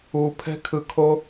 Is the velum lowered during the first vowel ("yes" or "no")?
no